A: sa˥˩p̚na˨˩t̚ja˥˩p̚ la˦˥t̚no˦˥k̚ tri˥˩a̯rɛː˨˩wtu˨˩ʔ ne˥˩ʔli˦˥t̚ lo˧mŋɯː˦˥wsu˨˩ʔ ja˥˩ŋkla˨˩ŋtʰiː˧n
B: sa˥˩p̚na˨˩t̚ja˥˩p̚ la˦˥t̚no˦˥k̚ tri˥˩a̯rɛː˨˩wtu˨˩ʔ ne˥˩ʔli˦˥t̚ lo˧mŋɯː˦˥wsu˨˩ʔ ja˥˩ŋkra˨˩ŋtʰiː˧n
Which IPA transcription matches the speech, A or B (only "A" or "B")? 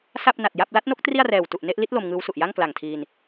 A